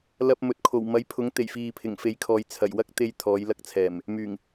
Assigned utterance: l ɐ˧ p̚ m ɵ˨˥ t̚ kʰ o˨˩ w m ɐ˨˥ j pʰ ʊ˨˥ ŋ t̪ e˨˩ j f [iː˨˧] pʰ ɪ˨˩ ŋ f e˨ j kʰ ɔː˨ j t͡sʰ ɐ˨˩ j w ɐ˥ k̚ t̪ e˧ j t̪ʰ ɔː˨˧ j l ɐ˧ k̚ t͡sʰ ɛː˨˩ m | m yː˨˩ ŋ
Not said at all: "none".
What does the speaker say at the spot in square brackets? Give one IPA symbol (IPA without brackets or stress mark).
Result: iː˨